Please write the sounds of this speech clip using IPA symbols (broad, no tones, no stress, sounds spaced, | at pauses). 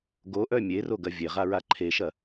ɡ o ʔ œ mʲ e r o ɡ ɐ vʲ e ʁ a ɹ a ǃʰ e ʃ ɐ